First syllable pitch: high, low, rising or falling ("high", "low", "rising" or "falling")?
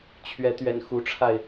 rising